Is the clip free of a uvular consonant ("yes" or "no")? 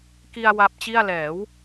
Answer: yes